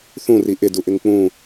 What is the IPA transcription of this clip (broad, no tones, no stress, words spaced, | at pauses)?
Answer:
θũri ʔɪduʔɪŋ k͡pũ